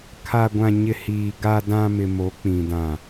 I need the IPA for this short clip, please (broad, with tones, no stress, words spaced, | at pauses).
kʰa˨ɡʷã˨ɲɪ˨ hiː˨ ɡa˨dã˨ mɪ˨mo˨˦k͡pĩ˨ dã˨